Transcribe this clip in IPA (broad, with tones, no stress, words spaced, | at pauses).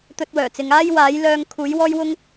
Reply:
t̪ɵ˧t̚wœː˨˩t͡sɪ˨˧ŋ aː˥j waː˨˥jlœː˧ŋ kʰuː˨˥jwɔː˥jwʊ˥ŋ